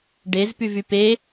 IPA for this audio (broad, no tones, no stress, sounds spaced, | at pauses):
ɖ e z p y v y p e